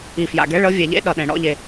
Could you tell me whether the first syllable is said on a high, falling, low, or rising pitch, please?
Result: low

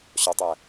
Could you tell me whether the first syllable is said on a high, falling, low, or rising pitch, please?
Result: low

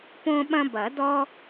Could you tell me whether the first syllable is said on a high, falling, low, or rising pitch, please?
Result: high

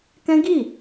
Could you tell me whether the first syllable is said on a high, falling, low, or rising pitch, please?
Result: high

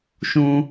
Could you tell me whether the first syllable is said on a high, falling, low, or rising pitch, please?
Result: high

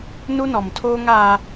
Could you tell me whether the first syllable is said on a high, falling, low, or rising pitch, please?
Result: high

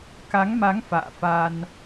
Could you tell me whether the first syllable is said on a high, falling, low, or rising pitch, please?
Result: rising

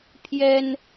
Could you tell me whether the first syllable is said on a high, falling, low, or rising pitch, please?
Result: high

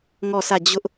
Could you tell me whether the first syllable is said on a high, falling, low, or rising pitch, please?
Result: falling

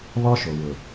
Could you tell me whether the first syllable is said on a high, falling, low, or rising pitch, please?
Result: high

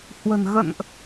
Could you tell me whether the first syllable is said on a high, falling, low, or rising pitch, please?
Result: low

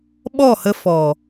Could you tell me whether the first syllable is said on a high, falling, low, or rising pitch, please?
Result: falling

